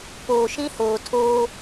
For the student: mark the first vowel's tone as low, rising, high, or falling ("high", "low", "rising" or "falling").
low